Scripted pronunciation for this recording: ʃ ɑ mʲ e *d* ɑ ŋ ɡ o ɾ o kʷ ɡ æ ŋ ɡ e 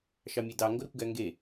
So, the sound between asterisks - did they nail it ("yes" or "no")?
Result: yes